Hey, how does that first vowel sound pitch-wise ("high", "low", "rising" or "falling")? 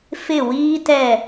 falling